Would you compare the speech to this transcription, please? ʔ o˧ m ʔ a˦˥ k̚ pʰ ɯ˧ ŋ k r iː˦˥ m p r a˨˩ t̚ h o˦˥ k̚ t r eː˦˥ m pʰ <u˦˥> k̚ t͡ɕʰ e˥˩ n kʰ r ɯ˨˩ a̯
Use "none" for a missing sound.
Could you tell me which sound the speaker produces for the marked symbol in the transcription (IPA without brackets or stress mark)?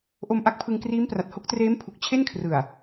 u˨˩